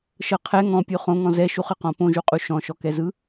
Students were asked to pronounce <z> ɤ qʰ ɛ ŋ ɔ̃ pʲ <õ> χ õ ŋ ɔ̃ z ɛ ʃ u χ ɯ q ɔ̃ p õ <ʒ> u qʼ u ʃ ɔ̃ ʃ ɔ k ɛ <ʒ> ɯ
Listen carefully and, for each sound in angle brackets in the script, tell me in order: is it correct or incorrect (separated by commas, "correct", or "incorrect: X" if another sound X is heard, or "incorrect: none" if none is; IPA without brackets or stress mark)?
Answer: incorrect: ʃ, incorrect: o, correct, incorrect: z